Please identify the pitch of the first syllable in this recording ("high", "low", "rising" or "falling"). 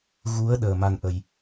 rising